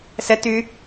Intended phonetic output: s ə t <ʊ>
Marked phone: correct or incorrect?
incorrect